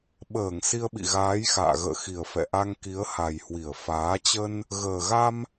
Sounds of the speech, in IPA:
ɓəː˧˩ŋ si˧ə̯ɓḭ˧˨ ɣaː˨˦jxa̰ː˧˨ ɣə̰ː˧˨xi˨˩ə̯ fɛ̰˧˨ʔa˧ŋ ki˨˦ə̯ha˨˩jhwi˧˩ə̯ faː˨˦ t͡ɕə˧n | ɣəː˨˩ɣa˧m

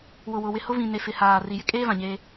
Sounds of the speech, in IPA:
wʊ˨wʊ˨wɪ˨hʊ˦ vĩ˨ ne˨ fɪ˨haː˨ ri˨jɪ˦ kʼeː˦vã˨ɲeː˦

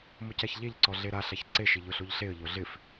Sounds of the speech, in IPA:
mʊcaçʎeʎǀɔ ɮeɾaɬaç ǀeʃɪ ʎʊɬoʎɬeə̯ʎo ɮɪf

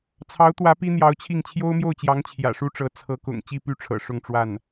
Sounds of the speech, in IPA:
t͡sʰɑ˧˥ʊ̯t̪wä˧˥ pi˥n̪jɑ˧˥ʊ̯t͡ɕʰi˥˩ŋ t͡ɕʰjo˥ʊ̯mjo˥˩ʊ̯t͡ɕjɑ˧˥ŋ t͡ɕʰjä̰˨˩ʂu˥ʈ͡ʂɤ˧˥ t͡sʰɤ˧˥kʊ̰˨˩ŋ t͡ɕi˥˧py˥˩ʈ͡ʂʰɤ̰˨˩ ʂʊ˥˧ŋʈ͡ʂwa˥˩n

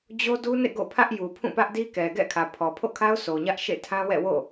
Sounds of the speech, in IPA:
d͡ʑo˦du˦nḛ˦˨ ɡo̰˦˨pʰä˦ʔ ju˨pʰũ˦˨pä˦ʔdi˦ kɛ˨ɡɛ̰˦˨ kʰä˨pʰɔ˨pʰo̰˦˨kʰa˦ʊ̯ sʰo˨ɲä˦ʔʃḛ˦˨ tʰã˦wɛ̰˦˨wo̰˦˨

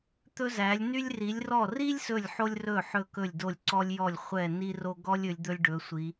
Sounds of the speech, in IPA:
t̪ɵ˥zæ˨˦lʲ ny˥lʲri˨˦lʲrɔ˥˨ ri˥lʲ sɵ˥˨lʲħo˥lʲrɵ˥˨ ħɵ˥˨kɵ˥˨lʲdo˥˨lʲ ǀɔ˥lʲjɔ˥˨lʲ χʷɛ˥˨ni˥ro˥ ɡɔ˥lʲ ɵ˨˦lʲd̪ɵ˥lʲɖɵ˨˦sʷi˨˦

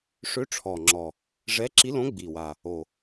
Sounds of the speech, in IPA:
ʂø˧˥ʈ͡ʂʰɔ˨˩ ŋ͡ǁɔ˨˩ | ʐɛ˧˥ǁi˧˥lõ˧˥ ɡ͡bi˨˩wa˨˩ | o˨˩

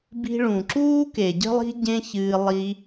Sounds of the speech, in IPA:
bi̤˧ ɭũ˨ǁuː˦ ke˨ɟə̤˦lˠi̤˦ ɟẽ˦ çɨː˧ lˠi˧

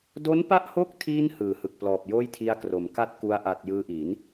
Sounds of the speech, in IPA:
do˦˥npa˦˥ʔho˦˥k̚tʰiː˧n hɯː˨˩hɯ˨˩k̚plɔː˨˩p̚joː˥˩j tʰi˧a̯kro˩˦m ka˥˩t̚ku˧a̯ʔa˨˩t̚ jɯː˧ʔiː˩˦n

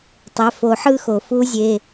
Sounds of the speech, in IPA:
tˤɛ˩˧˩fo˨˩˦ħɯ˦˨ xo˩fu˦˥zʲe˩˧˩

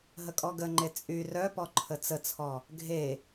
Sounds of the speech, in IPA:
ɦəkʼɔɡəŋ͡ǃe t͡sʼy rœpɔ ǃʰət͡sət͡sʰɔ | ɡʱe

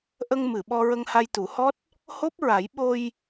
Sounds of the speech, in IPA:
ʔə˧ŋmɨ˨˩˨ ɓɔ˧ɹə˧ŋha˧jt̪u˨˩˦ hɔ˦˥t̚ | ho˦˥p̚ɹa˨˩˦j ɓo˧j

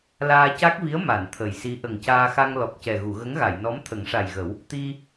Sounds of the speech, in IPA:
laː˧ca˦˥k̚vi˧˥ə̯ ma˨˩˨n t̪ʰə˨˩jsi˧˥ ʔə˨˩ŋcaː˧xa˧ŋ lɔ˨˩k̚cɛ˨˩ ɣu˨˩˨ɣə˧˥ŋɣa˨˩˨jnɔ˧˥m t̪ʰə˨˩˦ŋʂa˨˩jɣə˨˩˦w | t̪i˧

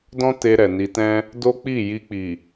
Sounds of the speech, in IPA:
dɔ̃˦te˧ ɾɛ˨ni˧tɛ̃˦ | do˦k͡pi˦˨ ji˧k͡pi˨

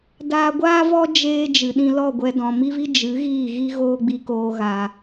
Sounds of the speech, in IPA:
daː˧ɡʷaː˦vɔ˦ d͡ʒeː˦ d͡ʒɨ˨ ɗĩ˧lɔ˦˨ɡʷɛ˧ dɔ̃˨mi˦vi˦ d͡ʒɨ˨˦ ɣiː˦˨ɣi˦ ɣoː˦ɡ͡bi˧koː˧ ɣa˨

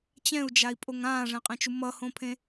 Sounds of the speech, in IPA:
t͡ɕɛ̃u̯d͡ʒai̯pʼoŋ ãːʐɛ̃qʼɛ̃t͡ʃu mʌhõpʰẽ

